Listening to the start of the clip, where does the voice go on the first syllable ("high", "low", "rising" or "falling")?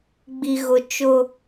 low